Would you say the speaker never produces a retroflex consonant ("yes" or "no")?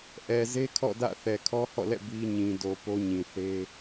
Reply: yes